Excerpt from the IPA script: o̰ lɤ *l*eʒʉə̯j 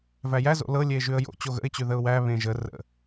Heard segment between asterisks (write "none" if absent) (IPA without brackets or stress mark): lʲ